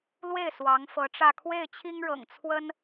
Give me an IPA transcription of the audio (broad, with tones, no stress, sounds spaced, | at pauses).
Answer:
l w e˥˩ ɪ̯ s w ɑ˧˥ ŋ f ɤ˧˥ ʈ͡ʂ ä˥˧ kʰ w e˥˩ ɪ̯ t͡ɕʰ i˥ ŋ ɻ ɤ̰˨˩ ŋ t͡sʰ w ə˥ n